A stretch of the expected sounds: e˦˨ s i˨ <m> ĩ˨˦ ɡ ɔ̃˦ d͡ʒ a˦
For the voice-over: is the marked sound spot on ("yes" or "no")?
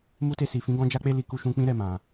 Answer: no